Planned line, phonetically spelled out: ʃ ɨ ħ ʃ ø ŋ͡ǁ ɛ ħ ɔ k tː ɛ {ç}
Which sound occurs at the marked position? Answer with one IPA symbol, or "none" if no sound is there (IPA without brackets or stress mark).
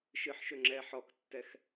x